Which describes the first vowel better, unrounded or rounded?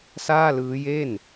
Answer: unrounded